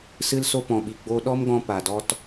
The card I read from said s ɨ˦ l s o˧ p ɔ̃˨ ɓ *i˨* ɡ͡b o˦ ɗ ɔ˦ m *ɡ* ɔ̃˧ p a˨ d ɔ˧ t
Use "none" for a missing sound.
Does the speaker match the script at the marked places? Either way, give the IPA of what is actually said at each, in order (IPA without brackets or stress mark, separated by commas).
i˨, ɡ